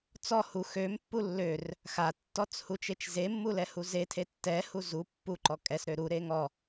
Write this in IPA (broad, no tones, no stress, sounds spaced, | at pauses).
t͡s ɔ h u x ø m pː u lː ø r | x a tː ɔ t͡s h u t͡ʃ e t͡ʃ z e mː u l ɛ h u z e tʰ e tː ɛ h u z u pː u ǃ ɔ kʼ ɛ s ɾ ø ɾ u ɾ e ŋ ɔ